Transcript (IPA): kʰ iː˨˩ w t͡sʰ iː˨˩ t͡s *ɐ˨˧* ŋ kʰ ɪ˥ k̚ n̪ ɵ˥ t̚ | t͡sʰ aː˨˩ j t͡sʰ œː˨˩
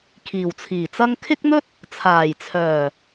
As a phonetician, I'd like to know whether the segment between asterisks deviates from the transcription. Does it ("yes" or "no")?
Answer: yes